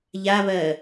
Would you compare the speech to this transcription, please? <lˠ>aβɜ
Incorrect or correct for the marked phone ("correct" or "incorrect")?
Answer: incorrect